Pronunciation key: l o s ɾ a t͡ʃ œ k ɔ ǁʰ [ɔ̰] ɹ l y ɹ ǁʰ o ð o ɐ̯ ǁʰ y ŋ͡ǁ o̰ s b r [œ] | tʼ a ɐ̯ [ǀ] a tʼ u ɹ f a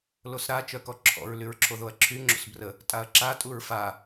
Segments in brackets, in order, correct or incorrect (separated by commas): correct, incorrect, incorrect